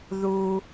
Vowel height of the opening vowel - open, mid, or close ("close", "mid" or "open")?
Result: close